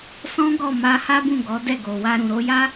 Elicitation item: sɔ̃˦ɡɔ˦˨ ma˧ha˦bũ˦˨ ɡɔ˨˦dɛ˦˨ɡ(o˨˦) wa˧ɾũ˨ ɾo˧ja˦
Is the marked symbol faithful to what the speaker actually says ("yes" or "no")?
no